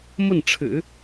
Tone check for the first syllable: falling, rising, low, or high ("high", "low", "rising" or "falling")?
falling